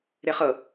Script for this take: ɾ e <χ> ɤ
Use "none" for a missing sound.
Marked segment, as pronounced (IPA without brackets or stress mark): χ